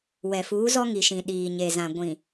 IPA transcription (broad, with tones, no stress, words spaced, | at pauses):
wɛ˨fuː˨˦zɔ˦ ŋi˨ʃĩ˨ ɗiː˨ ɲe˨zã˨ ɡʷĩ˨